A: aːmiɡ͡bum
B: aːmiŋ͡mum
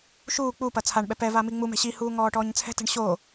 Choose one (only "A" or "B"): B